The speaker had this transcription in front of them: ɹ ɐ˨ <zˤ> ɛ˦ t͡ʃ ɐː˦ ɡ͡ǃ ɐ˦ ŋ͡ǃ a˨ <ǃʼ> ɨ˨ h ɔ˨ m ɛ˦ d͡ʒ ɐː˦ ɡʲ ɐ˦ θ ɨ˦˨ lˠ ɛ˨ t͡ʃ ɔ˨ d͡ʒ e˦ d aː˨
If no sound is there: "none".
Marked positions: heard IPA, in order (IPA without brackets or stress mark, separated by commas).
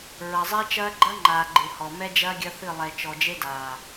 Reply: zˤ, ɡ͡ǃ